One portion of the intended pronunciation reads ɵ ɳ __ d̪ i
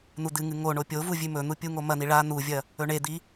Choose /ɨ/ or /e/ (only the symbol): e